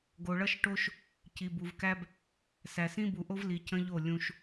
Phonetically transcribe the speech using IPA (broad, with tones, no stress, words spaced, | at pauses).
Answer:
ɡo˨ɭʌ˦ʃʈo˦ʃ | ci˨bu˨vkæ˦b | sæ˨sĩ˦bu˨ʔo˦v li˨cə̃˦ʎo˦˨ lʲũ˦ʃ